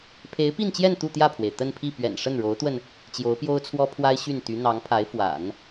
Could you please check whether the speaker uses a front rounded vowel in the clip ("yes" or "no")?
yes